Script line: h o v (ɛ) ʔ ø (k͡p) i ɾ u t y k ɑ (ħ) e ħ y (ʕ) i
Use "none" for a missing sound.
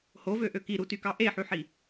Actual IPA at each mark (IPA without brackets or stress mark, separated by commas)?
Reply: ø, k, ʔ, ħ